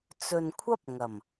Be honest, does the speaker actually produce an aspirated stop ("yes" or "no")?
yes